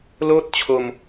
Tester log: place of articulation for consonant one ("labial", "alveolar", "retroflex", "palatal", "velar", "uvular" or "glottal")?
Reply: alveolar